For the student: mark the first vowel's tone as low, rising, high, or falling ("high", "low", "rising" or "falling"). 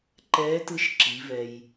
rising